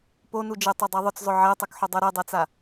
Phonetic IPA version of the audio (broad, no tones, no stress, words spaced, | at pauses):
ponu d͡ʒɛtˤɛdˤa ðˤʊt͡szˤʊ ʕɛtˤukħʊdˤo ɾɛdˤɛt͡sa